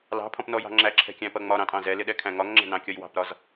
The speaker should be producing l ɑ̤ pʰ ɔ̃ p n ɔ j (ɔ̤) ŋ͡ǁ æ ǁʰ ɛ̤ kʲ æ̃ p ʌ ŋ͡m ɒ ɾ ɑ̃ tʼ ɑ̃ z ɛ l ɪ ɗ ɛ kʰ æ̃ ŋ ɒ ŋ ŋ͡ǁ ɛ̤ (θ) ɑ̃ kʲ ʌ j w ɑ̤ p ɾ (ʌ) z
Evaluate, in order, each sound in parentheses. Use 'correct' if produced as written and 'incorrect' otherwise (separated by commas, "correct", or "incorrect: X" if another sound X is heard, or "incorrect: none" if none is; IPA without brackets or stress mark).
incorrect: ɑ̤, incorrect: n, incorrect: ɒ